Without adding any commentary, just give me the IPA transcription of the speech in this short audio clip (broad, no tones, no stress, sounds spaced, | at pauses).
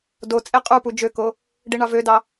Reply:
d o t͡sʼ e qʼ u p u d͡ʒ ø k o | ɖ i ɳ ɑ v ø d ɑ